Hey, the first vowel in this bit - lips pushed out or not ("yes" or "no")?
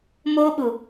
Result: yes